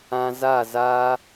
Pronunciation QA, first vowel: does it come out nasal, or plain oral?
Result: nasal